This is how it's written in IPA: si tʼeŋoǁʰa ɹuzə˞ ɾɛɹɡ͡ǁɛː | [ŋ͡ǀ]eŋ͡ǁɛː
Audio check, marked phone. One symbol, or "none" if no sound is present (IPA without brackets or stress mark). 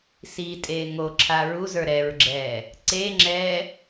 ǀ